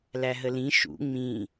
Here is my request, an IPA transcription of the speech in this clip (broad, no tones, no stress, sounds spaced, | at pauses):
l æ ɦ ə l ĩ ʃ ṵ ŋ͡m ĩ